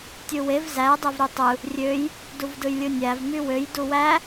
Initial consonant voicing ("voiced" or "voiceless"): voiceless